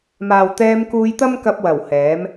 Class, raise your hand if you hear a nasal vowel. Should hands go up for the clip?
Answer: no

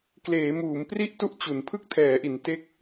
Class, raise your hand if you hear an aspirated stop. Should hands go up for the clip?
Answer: yes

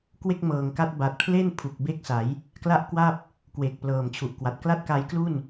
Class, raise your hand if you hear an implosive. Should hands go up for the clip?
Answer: no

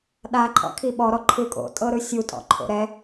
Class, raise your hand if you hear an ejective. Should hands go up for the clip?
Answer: yes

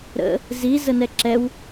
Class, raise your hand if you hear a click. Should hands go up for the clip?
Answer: yes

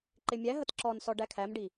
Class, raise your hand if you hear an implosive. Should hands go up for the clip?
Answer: no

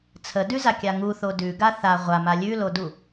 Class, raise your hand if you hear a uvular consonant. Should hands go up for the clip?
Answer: yes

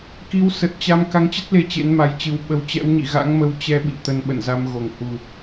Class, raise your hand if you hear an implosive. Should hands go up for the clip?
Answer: yes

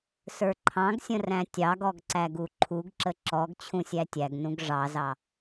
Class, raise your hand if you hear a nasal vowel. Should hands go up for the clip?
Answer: yes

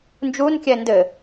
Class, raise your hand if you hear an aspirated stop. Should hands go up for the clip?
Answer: no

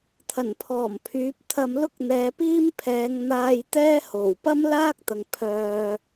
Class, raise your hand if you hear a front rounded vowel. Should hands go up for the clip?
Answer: yes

